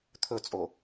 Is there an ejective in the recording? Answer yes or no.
yes